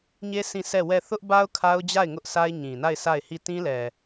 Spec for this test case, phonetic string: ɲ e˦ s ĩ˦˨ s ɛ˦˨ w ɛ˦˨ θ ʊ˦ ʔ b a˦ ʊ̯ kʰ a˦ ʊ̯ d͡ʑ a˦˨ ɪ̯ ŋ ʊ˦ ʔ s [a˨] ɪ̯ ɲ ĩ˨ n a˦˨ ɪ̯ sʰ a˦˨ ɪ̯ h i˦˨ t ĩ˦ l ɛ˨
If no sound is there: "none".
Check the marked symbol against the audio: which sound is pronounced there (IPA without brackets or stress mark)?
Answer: a˦